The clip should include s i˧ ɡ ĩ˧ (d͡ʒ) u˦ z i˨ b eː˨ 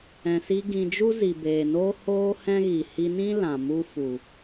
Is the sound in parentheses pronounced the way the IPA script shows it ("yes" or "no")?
yes